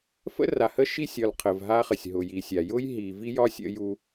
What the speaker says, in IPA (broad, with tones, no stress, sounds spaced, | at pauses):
f ə̰˦ r a˨ h ə˦ ʃ i˦ sʲ ɒ˨ l qʰ ə˨ v ɦ a˦ χ ə˨ sʲ ɦ ʊ˨ j i˨ sʲ a˨ j ʊ˦ j ɦ i˨ v i˦ j ɒ˦ sʲ ə̰˦ j u˦